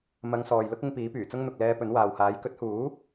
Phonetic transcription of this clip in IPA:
m ɐ˨˧ ŋ s ɔː˨ j l ʊ˥ k̚ ɪ˧ ŋ p iː˨˥ p yː˨˩ t͡s ʊ˥ ŋ n̪ ʊ˨ k̚ l ɛː˧ p ɵ˨˥ n w aː˨ w h aː˨˥ j k ɵ˨˥ t̚ h uː˨˥

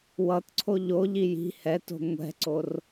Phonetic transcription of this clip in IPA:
w ʌ t ǀʰ o ʎ o ʎ i j i̤ h ɛ t o̤ ŋʷ ɛ̤ ǀ o r

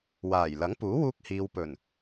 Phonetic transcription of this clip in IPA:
w aː˨˩ j l ɐ˨˥ ŋ p uː˨˥ w uː˧ k̚ h iː˨ w p ɵ˨˩ n

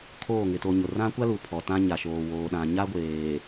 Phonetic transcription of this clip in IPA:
kʰ oː˦˨ ŋ ɪ˨ t o˨ ɲ ʊ˨ r ã˦ kʷ a˦ l u˨ pʰ ɔ˨ t ã˦ ɲ a˨ ʃ oː˨ w oː˨ ɗ ã˨ ɲ a˦ ɡʷ eː˨

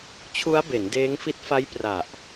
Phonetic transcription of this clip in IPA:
t͡ɕʰ u˦˥ a̯ b e˩˦ n d eː˦˥ ŋ f i˦˥ t̚ f a˦˥ j p r a˨˩ ʔ

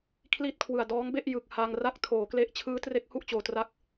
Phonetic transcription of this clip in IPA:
kʰ l iː˥˩ t̚ kʰ w ɯ˨˩ a̯ d ɔː˦˥ ŋ b e˥˩ ʔ j ɯ˨˩ k̚ h a˧ ŋ r a˥˩ k̚ tʰ oː˩˦ k l e˦˥ ʔ t͡ɕʰ ɯː˦˥ t r e˦˥ k̚ h u˥˩ ʔ t͡ɕ oː˨˩ t r a˦˥ k̚

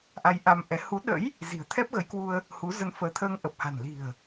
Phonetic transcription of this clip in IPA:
ʔ a˧ j ʔ a˧ m ʔ ɛ˨˦ h u˨˦ ɗ ə̰˧˥ j | z i̤˨˩ ə̯ t̪ʰ ɛ˦˥ p̚ ɣ ə˨˦ j k w u˧ ə̯ | h u˨˦ z ə˧ n f əː˨˦ t̪ʰ əː˧ ŋ ʔ ə˨˩ p̚ h a̤˨˩ n l i̤˨˩ ə̯

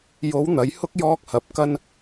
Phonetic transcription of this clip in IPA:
j o˨˥ w n̪ ɐ˨˥ j h ʊ˥ k̚ j ɔː˥ k̚ h ɐ˨ p̚ k ɐ˥ n

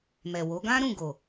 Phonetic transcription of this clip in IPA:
m ɛ˨ w o˨˦ ɡ ã˦ ɾ ũ˦˨ ɡ o˨

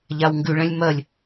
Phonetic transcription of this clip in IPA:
ʎ a w ŋ ɡ ʉ ɭ ɛ̃ lʲ m ɜ lʲ

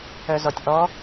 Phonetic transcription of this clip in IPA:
œ z ɔ tʲ ʔ ɔ

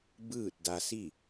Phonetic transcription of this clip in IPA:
b ɯː˥˨ t̚ d a˧ s i˥˨

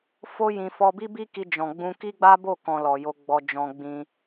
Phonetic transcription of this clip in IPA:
f o˦ j ĩ˧ f ɔ˧ b i˦ b i˦ k i˧ d͡ʒ ɔ̃˧ ɡ͡b ũ˦ k i˦ ɡ͡b a˦ b o˦˨ k ɔ̃˨ l ɔ˨ j o˧ ɡ͡b ɔ˧ d͡ʒ ɔ̃˧ ɡ͡b ĩ˧

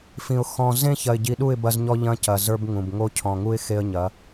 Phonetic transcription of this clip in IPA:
f ĩ˨ ʊ̯ x ɔ̃˨ z ẽ˦ ç ɐ˨ ɪ̯ ɟ i˨ ɗ u˦˨ ɪ̯ b ɐ˦ z ɲ ɔ˦ ʎ ɐ̃˦ c ɐ˨ z ə˞˦ b ŋ ũ˨ b ŋ o˦ cʰ ɔ̃˨ ŋ u˦ ɪ̯ x e˦ ə̯ ɲ ɐ˨˦

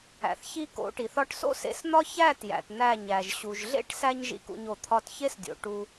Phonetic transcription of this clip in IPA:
æ̰˨ θ ç i˦ k o̰˨˦ ʈ i˨ θ ɒ˧ ʈ s o̰˦ s ḛ˧ s n̪ ɒ˦ ç æ˦˨ t j æ̰˨ t n̪ æ˦˨ ɲ æ˨ ʒ ɕ u˨ ʒ ɮ ḛ˦ ʈ s æ˧ ɲ ʒ ḭ˨ k ṵ˨ ɲ o˨ t̪ʰ ɒ˧ t ç e˦ s dʲ o̰˨ ʈ u˧

